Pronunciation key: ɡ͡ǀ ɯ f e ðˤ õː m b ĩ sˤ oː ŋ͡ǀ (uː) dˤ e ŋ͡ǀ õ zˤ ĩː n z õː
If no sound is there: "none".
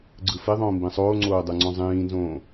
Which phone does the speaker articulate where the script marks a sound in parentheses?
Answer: oː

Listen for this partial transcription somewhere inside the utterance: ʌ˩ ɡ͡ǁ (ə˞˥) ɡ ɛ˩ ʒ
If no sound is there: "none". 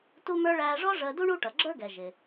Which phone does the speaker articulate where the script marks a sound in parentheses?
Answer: ə˞˥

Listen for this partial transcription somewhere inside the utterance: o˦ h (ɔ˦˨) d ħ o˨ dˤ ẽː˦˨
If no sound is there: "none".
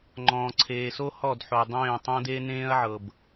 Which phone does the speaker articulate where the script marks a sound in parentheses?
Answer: ɔ˦˨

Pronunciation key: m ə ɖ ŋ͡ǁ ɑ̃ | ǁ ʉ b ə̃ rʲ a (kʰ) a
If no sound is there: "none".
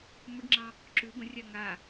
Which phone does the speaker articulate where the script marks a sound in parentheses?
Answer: ŋ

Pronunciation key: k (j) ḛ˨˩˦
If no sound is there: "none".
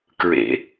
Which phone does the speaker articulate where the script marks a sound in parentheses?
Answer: ɹ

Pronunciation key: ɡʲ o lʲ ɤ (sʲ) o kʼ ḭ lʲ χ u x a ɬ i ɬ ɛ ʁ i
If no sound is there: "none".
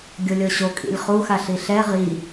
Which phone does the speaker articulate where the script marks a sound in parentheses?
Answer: ɕ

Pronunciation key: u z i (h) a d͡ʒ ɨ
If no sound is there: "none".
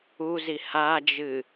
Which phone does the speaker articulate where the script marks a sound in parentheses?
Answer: h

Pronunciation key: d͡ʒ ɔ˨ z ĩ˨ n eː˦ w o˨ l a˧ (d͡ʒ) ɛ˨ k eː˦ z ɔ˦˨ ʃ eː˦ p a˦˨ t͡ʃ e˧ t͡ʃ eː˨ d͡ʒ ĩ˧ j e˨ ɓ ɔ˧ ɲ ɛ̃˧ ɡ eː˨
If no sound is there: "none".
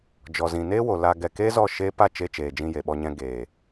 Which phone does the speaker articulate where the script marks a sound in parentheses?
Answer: ɡ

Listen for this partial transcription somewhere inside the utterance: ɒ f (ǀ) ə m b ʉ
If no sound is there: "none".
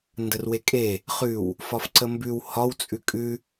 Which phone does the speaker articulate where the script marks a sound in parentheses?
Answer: ǀ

